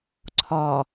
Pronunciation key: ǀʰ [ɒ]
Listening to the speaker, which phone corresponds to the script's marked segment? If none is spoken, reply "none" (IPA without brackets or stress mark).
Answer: ɒ